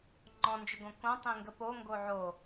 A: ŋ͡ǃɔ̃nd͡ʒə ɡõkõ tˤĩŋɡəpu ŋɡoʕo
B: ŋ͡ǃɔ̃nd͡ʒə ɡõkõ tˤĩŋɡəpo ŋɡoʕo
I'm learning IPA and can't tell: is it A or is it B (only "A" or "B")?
B